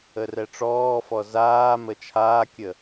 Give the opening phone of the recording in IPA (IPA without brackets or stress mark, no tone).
ə